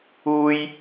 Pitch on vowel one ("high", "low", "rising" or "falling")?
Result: high